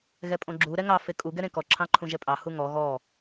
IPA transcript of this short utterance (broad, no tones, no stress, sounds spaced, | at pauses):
ɣ ɛ pʼ õ ɡ͡ǁ u ɾ ɛ ŋ ɑ f e kʼ u ɡ ɛ ɾ ẽ k ɔ ǁʰ ɑ̃ ǃʰ ũ ʒ ɛ pʼ ɑ h u ŋ ɔ ɣ ɔ